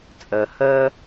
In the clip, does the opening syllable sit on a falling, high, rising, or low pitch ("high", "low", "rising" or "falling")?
low